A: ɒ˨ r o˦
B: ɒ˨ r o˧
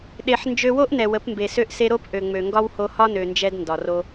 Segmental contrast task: B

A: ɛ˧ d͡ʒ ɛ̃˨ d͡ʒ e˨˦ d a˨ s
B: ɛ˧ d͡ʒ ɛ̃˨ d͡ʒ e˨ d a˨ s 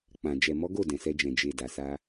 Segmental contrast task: B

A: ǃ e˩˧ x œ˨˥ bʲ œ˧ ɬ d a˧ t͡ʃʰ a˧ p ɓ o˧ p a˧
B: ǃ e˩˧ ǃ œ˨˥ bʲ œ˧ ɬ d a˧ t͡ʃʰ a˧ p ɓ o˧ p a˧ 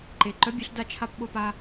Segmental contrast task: B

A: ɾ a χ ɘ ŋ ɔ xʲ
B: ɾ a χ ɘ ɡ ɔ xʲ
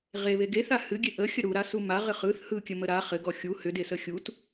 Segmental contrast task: B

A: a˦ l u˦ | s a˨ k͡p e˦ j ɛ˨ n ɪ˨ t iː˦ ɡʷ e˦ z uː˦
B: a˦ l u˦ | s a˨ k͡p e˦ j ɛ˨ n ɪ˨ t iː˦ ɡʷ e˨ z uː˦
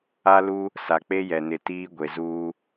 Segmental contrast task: B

